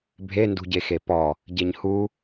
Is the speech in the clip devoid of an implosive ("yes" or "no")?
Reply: yes